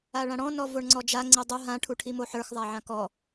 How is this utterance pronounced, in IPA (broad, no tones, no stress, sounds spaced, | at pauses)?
a ɭ ã ɽ ɔ̃ n ɔ v o ɳ ŋ͡ǀ ɔ d͡ʒ a ŋ͡ǀ i dˤ o ɦ ã ʈʰ u ʈʰ i m o ħ ə˞ x ðˤ a ʕ ã k ɔ